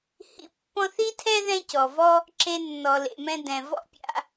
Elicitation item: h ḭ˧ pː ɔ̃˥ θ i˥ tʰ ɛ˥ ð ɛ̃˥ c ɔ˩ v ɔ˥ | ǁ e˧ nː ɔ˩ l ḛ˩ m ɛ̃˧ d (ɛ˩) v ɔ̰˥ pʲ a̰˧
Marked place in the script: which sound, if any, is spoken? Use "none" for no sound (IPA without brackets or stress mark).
ɛ̃˩